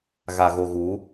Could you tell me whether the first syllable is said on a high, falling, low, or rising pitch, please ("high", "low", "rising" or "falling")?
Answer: low